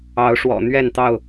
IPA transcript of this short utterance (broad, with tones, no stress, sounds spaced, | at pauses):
ɑ˨˦ ʊ̯ ʂ w ɔ̰˨˩ n̪ ɥ ɛ˥˨ n t̪ ɑ˥˨ ʊ̯